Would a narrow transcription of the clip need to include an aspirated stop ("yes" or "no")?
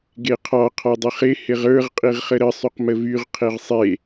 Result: yes